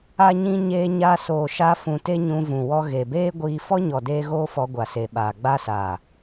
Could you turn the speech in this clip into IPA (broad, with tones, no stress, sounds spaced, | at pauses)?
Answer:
a˧ ɲ ĩ˧ ɲ eː˧ ɲ a˧ s oː˨ ʃ a˧ f ũ˨ t e˦ ɲ ũ˧ v ũ˨ w ɔ˧ ɣ e˨ b eː˦ ɡʷ iː˧ f ɔ˦ ɲ ɔ˨ d eː˧ ɣ oː˦ f ɔ˧ ɡʷ a˨ s e˨ ɓ aː˨ ɡ͡b a˦ s aː˨